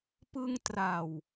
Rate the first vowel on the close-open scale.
close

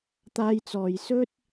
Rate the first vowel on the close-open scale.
open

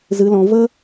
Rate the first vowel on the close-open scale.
close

